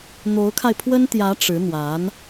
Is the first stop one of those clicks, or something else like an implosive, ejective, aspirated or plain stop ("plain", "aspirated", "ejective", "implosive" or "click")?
aspirated